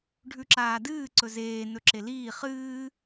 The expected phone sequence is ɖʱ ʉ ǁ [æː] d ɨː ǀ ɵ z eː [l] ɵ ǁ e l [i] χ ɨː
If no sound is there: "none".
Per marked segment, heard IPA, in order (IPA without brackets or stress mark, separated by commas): aː, n, iː